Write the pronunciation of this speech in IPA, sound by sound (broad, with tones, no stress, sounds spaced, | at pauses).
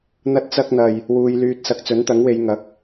n̪ ɐ˥ t̚ t͡s ɐ˥ k̚ n̪ ɐ˧ j | w uː˧ j l yː˧ t̚ s ɐ˨˥ k̚ t͡s ɵ˨˥ n t̪ ɐ˨˥ ŋ w e˨˧ j ŋ ɐ˨˥ k̚